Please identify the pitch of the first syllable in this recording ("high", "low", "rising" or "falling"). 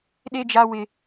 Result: high